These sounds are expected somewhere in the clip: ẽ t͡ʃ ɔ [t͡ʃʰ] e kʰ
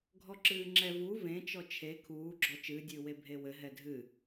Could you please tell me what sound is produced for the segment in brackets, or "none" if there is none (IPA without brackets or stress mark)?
t͡ʃʰ